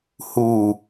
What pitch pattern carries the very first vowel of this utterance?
low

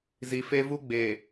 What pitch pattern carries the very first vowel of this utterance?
low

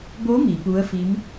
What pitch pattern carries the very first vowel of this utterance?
rising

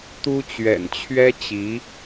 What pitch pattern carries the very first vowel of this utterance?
high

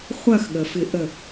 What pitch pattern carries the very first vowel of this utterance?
falling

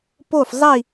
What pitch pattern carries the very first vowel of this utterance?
falling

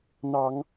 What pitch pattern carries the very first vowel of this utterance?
low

